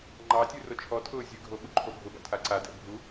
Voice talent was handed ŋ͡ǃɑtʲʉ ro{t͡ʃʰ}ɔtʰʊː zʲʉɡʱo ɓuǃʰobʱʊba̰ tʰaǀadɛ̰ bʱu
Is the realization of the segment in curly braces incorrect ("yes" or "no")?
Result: no